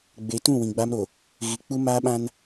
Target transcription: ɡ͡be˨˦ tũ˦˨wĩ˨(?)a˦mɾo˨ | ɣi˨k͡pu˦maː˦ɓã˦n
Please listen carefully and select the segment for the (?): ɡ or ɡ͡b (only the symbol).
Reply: ɡ͡b